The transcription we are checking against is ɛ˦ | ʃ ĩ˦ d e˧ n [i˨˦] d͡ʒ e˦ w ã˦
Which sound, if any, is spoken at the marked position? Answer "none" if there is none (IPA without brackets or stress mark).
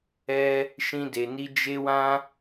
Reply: i˦